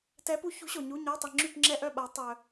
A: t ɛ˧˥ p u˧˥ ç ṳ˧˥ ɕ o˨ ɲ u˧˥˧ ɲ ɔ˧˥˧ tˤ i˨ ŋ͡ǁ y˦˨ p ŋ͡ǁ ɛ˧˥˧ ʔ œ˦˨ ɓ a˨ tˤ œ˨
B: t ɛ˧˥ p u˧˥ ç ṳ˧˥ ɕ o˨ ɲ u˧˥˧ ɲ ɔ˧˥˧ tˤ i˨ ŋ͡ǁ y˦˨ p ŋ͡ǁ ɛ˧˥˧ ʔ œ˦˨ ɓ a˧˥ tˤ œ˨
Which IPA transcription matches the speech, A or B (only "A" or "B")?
B